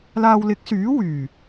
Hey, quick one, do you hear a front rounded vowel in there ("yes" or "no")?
yes